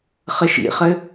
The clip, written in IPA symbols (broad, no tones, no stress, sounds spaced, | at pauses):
χ ɘ ʃ ḭ χ ɘ